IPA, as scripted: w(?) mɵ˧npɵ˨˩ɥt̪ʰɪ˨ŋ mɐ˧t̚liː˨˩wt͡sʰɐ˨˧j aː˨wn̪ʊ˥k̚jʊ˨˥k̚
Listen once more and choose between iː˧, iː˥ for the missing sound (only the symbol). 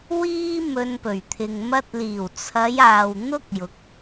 iː˥